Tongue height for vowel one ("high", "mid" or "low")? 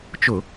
high